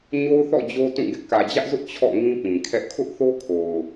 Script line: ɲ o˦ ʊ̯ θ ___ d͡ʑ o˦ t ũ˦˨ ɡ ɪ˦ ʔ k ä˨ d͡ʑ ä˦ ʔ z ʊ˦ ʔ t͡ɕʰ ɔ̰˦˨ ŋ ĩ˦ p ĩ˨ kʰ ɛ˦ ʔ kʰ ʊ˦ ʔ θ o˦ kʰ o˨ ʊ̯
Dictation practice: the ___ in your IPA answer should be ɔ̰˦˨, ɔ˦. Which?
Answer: ɔ̰˦˨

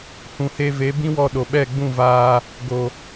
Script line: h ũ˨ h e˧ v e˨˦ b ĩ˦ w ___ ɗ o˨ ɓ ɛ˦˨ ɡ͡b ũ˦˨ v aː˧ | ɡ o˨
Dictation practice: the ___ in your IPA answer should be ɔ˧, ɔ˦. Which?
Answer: ɔ˧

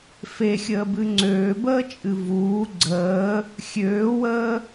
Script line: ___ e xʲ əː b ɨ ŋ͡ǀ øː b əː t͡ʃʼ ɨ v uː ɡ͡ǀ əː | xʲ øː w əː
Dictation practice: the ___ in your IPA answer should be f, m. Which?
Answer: f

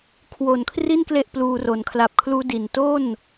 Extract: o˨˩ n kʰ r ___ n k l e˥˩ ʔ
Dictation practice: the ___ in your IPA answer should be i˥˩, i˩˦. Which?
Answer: i˥˩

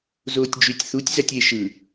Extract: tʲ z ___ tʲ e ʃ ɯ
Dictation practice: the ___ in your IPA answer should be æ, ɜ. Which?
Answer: æ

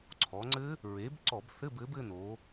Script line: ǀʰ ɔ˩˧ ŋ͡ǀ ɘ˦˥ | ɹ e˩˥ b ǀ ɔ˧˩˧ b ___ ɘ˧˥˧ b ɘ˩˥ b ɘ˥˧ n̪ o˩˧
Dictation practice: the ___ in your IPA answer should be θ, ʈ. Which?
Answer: θ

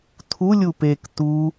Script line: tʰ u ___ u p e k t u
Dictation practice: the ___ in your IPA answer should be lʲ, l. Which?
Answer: lʲ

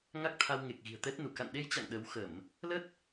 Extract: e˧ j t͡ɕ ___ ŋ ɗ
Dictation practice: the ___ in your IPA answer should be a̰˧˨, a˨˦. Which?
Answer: a̰˧˨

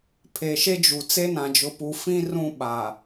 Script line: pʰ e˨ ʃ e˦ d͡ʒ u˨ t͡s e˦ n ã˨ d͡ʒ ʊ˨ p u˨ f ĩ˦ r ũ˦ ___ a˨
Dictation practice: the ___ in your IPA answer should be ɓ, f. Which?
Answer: ɓ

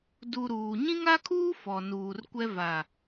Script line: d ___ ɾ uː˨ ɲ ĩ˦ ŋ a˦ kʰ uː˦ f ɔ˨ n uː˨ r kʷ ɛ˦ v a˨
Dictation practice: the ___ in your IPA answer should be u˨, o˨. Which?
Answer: u˨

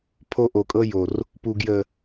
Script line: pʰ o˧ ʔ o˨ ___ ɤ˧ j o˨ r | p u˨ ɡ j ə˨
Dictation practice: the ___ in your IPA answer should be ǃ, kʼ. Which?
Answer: kʼ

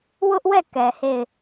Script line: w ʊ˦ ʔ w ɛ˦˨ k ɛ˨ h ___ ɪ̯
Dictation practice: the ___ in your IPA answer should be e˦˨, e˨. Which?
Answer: e˦˨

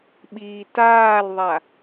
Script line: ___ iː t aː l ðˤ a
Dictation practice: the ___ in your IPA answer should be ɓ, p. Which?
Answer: ɓ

